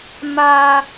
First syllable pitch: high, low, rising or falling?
high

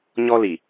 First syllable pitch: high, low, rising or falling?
high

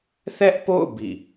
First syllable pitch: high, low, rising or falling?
high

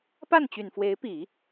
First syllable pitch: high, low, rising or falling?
falling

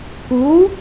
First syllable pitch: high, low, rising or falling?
rising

